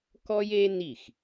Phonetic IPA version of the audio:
k ɔ˥ j e˥ n i˥˩ x

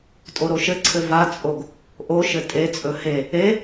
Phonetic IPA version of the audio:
tʼ o ɾ o ʃ ɘ ǀʰ ɘ v a t͡sʼ o ɡ | ʔ o ʃ ɘ tʼ e t͡sʼ ɵ h e | e

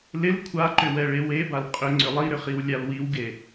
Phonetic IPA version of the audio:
l ɪ l kʷʰ a ǃ ʏ w ɛ ɭ e w e b a l qʼ ʏ ŋ͡ǀ ʏ lˠ i ɾ ʏ χ i w lʲ a l w i w ɡ e

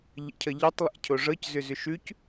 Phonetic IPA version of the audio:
ʎ ə̰ cʰ ʌ ʎ ɛ tˤ lˠ ɛ̰ cʰ o ʐ ɤ c z ʏ z ʏ ʃ ʉ c

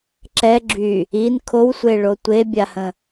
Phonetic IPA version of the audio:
ǁ ɛ ɡ͡ǁ y | i n kʰ o w sʷ e ɭ o tʷ e bʲ a h ə̃

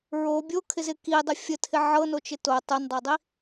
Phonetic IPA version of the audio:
ɹ o bʲ o kʰ ɪ z ɪ k i dˤ ɪ fʲ ə tʰ ɪ ʕ ɤ n o t͡ʃ ɪ t o tˤ o n dˤ ɤ dˤ i

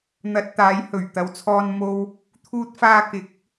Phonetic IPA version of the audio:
n̪ ɐ˨ t̚ t̪ aː˨˧ j h ɵ˨˩ ɥ t̪ ɐ˨˧ w t͡sʰ ɔː˧ n m o˧ w | t̪ʰ uː˧ t̚ f aː˧ k ɪ˨˥ k̚

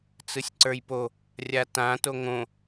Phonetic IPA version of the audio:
t͡s ɯ sʲ ǀ ə˞ j p o | rʲ a t ã t o ŋ õ

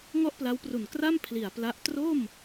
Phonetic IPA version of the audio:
ŋ ɔ˥˩ ʔ p l a˦˥ w p r u˨˩ n k r a˥˩ m pʰ l i˨˩ a̯ p l a˦˥ ʔ t r o˥˩ m

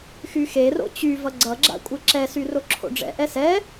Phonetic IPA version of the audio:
x y x e r o̰ t͡ɕ y v ʌ ɡ͡ǀ ʌ ɡ͡ǁ a̰ kʷʼ ɛ ǁ ɛ s y r o ǁʰ o̰ ɖ͡ʐ ɛ̰ ʔ ɛ s ɛ

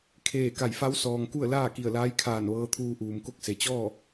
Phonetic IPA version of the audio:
kʰ eː˧˩ k a˧˩ j f a˧˥ w s ɔː˩ ŋ k u˥˨ ə̯ l aː˥˨ k i˧˩ ə̯ l aː˧˥ j kʰ aː˧˩ n ʋ ɤː˧ t̪ʰ uː˧ ʔ uː˩ m k o˥˨ k̚ s e˩ t͡ɕ ɔː˥˨

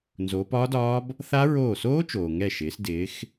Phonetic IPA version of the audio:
n z oː˩˧ p ɒː˦˥ d ɒː˦˥ b | θ a˦˥ ɹ oː˧˩ s oː˦˥ t͡ʃ oː˩ ŋ ɛ˧˩ ʃ ɪː˩˧ s d ɪː˩˧ x

